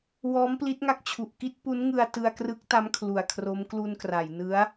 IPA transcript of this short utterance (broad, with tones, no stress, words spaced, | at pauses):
wɔː˦˥mpli˦˥t̚ŋa˦˥k̚t͡ɕʰu˨˩ʔ ki˥˩t̚pu˦˥n ŋɯ˧a̯tɯ˧a̯krɯ˦˥k̚ta˦˥m kʰlu˨˩a̯kʰro˦˥m klu˧nkra˩˦jnɯ˦˥a̯